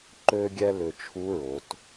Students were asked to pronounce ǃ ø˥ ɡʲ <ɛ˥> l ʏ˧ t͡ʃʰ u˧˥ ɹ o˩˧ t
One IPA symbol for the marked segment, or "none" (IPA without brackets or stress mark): ɛ˥